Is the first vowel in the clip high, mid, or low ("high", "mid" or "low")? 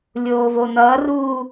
mid